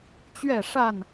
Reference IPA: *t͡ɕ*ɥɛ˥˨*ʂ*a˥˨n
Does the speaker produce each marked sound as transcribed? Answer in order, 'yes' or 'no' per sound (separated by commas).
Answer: yes, yes